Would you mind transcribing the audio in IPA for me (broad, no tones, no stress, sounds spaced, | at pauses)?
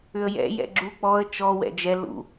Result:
ʏ ə̯ j ɛ̰ j ɛ̰ ɡ͡ǁ u k͡p ɔ ə̯ t͡ʃ ɔ w ɛ̰ d͡ʒ ɛ l ṵ